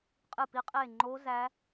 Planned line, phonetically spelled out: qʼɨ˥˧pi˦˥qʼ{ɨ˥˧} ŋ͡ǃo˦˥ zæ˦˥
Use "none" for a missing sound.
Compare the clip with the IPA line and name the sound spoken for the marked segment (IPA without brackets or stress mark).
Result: e˥˧